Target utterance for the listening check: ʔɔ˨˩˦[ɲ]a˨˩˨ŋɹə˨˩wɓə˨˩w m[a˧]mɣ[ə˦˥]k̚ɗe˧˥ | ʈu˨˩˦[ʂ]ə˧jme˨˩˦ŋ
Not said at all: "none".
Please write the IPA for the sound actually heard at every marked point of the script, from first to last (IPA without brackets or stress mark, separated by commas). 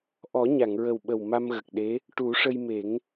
ɲ, a˧, ə˨˩, ʂ